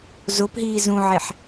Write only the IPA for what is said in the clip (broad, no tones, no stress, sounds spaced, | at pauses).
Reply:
z o p ɦ iː z ũ ʕ e ħ